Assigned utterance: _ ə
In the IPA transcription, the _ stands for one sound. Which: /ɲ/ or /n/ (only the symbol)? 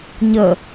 ɲ